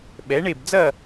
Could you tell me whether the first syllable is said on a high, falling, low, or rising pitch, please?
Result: rising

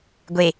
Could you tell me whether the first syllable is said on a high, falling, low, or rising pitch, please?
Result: low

